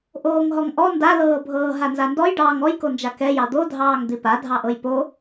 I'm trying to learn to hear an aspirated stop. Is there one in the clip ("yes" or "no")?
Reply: no